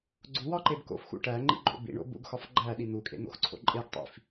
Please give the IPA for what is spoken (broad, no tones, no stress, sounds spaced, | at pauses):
ɡ͡ǀ u w ɒ ǃ e b k o̰ f x ṵ ʈ æ ŋ͡ǃ ḭ ɡ͡ǃ o̰ b ḭ ɳ o̰ b ṵ ɡ x ɒ f ɡ͡ǃ æ ɗ i n̪ u kʼ ḛ n̪ o̰ x ǀʰ o̰ ǃʼ e ɡ tˤ ḭ f